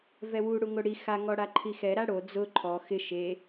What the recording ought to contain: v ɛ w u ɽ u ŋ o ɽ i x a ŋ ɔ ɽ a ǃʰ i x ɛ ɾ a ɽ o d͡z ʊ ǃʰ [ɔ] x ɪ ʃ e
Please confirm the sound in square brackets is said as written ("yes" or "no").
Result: yes